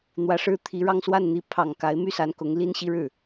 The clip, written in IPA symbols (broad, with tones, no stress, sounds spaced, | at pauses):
n̪ w ä˧˥ ʂ ɻ̩˥˩ t̪ʰ i˧˥ ɻ ɑ˥˧ ŋ s w a˥˩ n n̪ i˧˥ pʰ ɑ˨˩ ŋ k a˧˥ ɪ̯ m y˥ s a˧˥ n k ʊ˧˥ ŋ l i˥ n ɕ i˥ ɻ ɻ̩˥˩